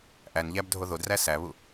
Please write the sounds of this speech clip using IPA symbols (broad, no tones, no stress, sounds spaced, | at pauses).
ʔ æ n ʎ æ b dʱ o ð o d r æ s æ β u